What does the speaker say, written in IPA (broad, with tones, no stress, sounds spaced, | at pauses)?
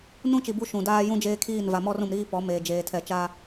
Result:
n ũ˦ t͡ʃ i˨ b u˦ ʃ ũ˨ d aː˦ j ũ˦ d͡ʒ eː˦ kʰ iː˦˨ n v a˨ m ɔ˦ r ũ˨ m ɾ iː˦ p ɔ˨˦ m eː˨ d͡ʒ eː˨ tʰ ɛ˨ t͡ʃ a˦